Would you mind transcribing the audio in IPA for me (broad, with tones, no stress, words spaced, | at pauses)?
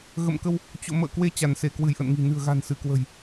ɣə̰˧˨mkə˧w | t͡ɕo̰˧˨ mə̰ː˧˨kwe˧ t͡ɕa˧˩nse˧˩ kwɨ˧˩jʔə̰˧˨nŋi̤˨˩ nɨ̤˨˩ə̯ɣa̤˨˩n sɨ˧˩kwə̤˨˩j